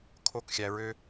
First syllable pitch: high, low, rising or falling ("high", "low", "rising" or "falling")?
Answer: high